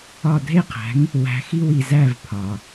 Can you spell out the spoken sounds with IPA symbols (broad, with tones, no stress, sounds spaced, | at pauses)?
ɒ˧˩ dʱ e˥˩ qʰ æ̤˩˥ ŋ | w æ̤˩˥ x i˧ w i˩ z æ˧˩ v pʰ ɒ˩